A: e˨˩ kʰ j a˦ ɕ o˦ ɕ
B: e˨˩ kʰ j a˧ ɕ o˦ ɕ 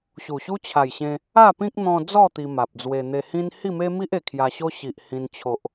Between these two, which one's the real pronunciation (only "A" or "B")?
B